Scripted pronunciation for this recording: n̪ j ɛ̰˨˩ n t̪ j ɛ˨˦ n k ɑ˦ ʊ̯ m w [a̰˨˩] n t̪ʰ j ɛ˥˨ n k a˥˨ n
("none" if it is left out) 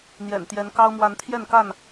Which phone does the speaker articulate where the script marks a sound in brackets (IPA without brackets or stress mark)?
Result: a˨˦